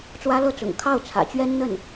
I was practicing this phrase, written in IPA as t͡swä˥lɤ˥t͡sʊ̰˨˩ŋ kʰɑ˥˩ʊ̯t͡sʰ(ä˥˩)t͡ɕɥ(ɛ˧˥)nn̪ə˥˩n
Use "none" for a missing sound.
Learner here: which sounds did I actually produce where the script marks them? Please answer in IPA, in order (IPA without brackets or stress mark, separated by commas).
ä̰˨˩, ɛ˥